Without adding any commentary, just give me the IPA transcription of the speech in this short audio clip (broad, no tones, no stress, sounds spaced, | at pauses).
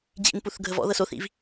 d͡ʑ ḭ n p u θ ɡʱ ə v ɔ̰ ð ɤ s o θ ḭ v